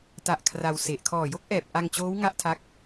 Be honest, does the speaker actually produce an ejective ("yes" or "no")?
no